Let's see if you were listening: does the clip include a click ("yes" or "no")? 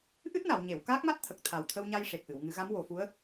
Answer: no